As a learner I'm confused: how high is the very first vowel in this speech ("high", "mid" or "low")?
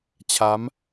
low